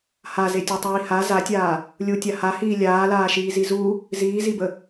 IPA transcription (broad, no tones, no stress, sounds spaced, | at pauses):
h a z e tʲ ɔ tˤ iː h a z a tʲ aː | lʲ u tʲ a h a h iː lʲ aː l aː ʃ iː z i z u | z iː z i b ə